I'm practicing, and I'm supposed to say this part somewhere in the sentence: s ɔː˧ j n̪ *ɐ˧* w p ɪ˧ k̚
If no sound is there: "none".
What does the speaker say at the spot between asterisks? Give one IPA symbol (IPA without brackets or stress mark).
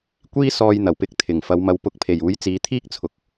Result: ɐ˨˩